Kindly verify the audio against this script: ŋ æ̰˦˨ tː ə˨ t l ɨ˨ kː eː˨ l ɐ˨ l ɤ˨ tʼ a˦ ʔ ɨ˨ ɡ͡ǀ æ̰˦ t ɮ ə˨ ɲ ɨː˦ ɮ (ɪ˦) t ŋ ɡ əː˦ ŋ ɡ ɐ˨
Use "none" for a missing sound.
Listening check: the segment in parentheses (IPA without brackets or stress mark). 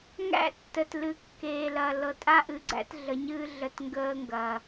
ə˦